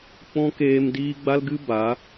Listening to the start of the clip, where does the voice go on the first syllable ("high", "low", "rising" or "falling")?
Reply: high